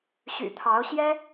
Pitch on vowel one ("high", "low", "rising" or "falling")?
low